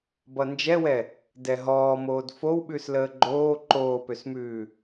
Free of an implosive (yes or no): no